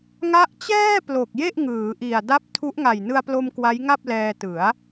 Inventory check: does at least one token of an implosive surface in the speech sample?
no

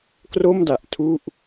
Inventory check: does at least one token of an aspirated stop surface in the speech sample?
yes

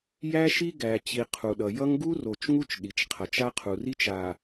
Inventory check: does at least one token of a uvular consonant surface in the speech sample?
yes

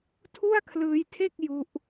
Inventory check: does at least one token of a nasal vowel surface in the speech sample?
no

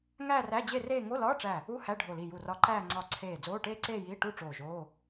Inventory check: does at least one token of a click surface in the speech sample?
yes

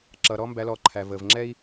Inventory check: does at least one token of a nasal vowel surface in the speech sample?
no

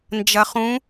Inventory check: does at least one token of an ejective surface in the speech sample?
no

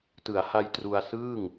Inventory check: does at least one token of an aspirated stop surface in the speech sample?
no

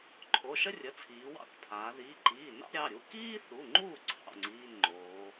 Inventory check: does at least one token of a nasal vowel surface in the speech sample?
no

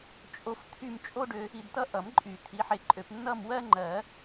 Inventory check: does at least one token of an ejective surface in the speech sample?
yes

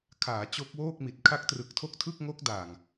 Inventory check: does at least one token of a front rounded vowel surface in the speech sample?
no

